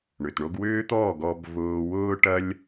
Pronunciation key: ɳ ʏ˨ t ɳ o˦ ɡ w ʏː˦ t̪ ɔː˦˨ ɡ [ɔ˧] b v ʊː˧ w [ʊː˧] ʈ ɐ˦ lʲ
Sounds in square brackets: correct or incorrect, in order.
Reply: correct, incorrect

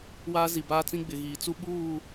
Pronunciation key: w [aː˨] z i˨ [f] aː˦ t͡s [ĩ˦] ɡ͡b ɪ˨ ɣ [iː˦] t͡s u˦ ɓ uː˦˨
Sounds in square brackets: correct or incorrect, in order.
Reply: incorrect, incorrect, correct, incorrect

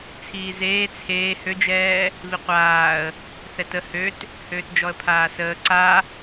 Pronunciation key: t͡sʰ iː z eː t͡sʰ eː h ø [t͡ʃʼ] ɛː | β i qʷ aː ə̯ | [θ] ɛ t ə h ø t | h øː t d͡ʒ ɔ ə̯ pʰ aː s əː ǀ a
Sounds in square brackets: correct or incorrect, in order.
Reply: incorrect, correct

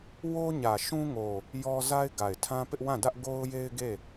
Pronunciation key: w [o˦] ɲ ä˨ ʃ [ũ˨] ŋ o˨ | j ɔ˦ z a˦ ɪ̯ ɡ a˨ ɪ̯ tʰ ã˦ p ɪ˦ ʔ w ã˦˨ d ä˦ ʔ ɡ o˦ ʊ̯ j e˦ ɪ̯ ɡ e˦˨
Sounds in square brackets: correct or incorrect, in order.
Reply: correct, incorrect

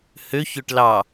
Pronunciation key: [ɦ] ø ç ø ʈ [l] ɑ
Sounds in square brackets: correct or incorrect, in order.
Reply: incorrect, correct

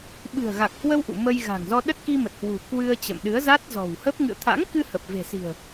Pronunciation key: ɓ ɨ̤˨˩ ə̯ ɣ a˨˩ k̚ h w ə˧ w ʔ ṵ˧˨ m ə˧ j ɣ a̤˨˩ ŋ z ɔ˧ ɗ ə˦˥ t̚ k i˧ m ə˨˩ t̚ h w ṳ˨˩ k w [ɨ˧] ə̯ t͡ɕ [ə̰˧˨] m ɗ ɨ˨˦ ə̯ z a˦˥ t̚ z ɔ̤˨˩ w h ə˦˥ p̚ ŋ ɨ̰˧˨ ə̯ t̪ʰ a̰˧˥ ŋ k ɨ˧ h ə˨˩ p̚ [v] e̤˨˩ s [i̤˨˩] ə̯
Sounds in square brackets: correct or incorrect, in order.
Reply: correct, correct, correct, correct

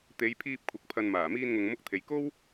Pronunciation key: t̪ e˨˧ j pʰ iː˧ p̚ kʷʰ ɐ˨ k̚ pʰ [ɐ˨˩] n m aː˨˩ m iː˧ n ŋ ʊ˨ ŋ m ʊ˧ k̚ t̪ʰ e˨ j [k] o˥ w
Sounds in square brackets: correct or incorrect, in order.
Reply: incorrect, correct

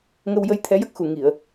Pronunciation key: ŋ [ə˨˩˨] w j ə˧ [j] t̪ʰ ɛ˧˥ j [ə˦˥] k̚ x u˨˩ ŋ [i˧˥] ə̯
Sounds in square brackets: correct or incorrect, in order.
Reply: incorrect, correct, correct, incorrect

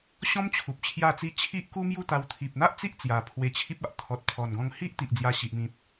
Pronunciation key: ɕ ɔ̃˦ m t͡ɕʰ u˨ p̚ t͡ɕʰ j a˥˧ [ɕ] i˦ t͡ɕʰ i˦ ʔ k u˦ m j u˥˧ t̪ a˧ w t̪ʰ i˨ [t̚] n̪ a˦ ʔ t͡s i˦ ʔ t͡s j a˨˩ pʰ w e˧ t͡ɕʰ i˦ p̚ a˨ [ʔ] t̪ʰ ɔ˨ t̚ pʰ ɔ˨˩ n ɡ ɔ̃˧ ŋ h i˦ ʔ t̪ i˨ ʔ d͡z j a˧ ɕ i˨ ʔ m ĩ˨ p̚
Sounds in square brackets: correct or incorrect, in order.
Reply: incorrect, incorrect, correct

